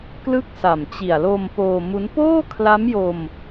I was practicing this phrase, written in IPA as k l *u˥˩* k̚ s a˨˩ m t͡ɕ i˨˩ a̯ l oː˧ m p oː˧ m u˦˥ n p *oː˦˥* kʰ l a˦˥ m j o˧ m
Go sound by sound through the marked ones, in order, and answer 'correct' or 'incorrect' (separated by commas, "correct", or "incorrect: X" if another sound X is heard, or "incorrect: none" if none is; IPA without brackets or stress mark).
incorrect: ɯ˥˩, incorrect: oː˥˩